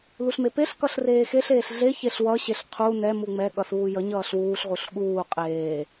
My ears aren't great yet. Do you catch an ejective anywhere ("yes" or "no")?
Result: yes